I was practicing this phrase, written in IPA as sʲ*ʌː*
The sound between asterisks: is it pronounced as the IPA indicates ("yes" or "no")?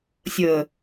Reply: no